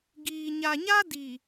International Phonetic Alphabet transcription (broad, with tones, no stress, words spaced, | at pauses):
ɡiː˨ɲa˨ɲa˦diː˨